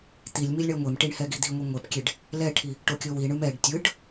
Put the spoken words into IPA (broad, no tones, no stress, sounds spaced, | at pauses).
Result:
t̪ i lʲ m i lʲ ɳ ɛ ŋʷ e m ʈ i ɳ h ɛ ɡ i d̪ i ŋʷ i ŋʷ ɛ p kʲ e ɖ | l ɛ ʈʰ i | ʈ o kʲ o w i ɳ ɯ m ɛ ɖ tʲ ɯ ɖ